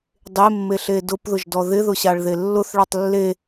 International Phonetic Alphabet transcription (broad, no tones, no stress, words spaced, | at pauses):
dˤemːeɬe dʊpðʊʒdɔ ðɪðʊɕaɭðe lːʊθɭɔtˤ lːe